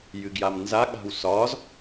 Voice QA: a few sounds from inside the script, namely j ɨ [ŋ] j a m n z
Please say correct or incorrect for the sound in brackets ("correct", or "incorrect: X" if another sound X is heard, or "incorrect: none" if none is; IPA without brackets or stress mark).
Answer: incorrect: ɡ